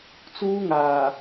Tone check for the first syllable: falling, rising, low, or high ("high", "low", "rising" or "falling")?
high